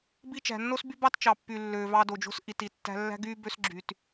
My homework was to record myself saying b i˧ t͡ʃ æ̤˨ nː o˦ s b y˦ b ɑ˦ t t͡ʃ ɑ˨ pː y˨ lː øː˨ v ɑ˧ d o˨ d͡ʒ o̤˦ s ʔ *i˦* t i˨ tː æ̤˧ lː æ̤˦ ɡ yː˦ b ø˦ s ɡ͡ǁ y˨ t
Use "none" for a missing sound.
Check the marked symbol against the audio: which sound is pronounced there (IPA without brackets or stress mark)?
i˨